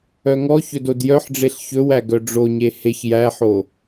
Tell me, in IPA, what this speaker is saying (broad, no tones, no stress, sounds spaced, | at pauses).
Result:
œ ŋ ɔ ç ɵ d o d j œ ħ ɖ͡ʐ e ɬ ç ɵ w æ ɡ œ ɖ͡ʐ o ɲ e h e ç j æ ħ o